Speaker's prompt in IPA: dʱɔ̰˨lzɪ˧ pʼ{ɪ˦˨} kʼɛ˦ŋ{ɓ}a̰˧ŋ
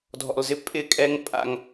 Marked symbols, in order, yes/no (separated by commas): yes, no